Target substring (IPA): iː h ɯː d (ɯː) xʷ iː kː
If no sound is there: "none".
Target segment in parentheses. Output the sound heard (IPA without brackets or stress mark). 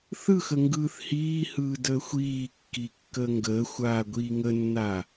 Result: əː